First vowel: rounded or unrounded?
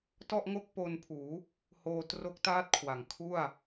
rounded